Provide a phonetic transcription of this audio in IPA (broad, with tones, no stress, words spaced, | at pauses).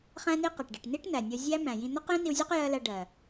χæ̃˦ni˦ qæ˨ʈɖi˨ʈ ni˦ʈn̪æ˨nʲɒ˧zʲæ˦ mæ̃˨jĩ˧ n̪ɒ˦qjĩ˦ni˧wzʲɜ˦q jɜ˦læ˧ɖɜ˨